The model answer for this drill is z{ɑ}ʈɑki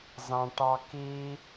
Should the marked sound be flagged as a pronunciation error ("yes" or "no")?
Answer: yes